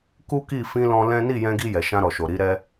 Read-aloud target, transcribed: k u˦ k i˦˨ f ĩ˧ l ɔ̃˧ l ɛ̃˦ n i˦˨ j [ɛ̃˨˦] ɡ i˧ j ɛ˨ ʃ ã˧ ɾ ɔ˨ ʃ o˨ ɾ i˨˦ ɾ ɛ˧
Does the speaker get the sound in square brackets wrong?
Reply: yes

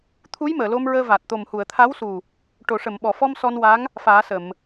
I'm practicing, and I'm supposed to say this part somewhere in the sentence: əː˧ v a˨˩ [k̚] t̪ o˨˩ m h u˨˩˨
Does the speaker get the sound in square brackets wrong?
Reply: yes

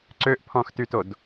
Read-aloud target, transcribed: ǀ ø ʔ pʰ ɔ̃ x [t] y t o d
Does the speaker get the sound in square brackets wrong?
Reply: no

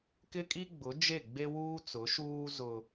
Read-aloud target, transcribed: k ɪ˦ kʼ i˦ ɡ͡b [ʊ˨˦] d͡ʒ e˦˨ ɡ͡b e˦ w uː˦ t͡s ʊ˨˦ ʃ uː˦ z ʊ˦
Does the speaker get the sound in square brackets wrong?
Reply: no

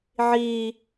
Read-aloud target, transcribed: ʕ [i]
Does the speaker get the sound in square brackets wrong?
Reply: yes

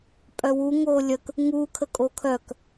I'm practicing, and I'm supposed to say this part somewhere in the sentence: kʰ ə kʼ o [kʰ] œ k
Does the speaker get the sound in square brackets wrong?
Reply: no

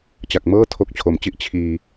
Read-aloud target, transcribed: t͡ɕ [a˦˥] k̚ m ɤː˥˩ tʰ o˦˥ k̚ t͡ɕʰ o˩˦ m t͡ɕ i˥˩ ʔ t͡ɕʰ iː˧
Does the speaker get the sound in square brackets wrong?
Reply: yes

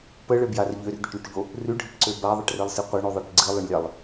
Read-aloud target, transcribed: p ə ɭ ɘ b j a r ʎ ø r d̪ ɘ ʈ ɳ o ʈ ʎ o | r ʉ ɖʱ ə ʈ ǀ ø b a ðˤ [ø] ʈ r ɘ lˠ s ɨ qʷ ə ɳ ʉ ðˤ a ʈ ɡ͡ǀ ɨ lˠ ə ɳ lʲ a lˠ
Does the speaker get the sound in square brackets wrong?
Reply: yes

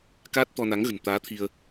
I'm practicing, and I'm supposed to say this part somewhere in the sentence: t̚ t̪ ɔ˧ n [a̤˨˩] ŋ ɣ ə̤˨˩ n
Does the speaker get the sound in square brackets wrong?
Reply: yes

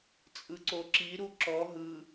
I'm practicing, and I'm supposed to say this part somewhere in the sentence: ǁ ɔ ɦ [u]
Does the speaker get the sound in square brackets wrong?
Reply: yes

